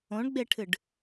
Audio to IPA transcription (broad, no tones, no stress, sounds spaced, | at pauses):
õ ɳ ɡ͡b e ʈʰ ɨ ɖ